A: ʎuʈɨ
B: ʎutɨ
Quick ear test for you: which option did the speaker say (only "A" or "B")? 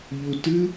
B